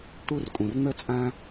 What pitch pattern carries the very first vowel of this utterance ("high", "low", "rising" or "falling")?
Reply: high